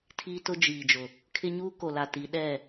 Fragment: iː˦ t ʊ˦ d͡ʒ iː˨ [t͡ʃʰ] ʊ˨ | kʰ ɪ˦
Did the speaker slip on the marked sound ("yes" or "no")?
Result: yes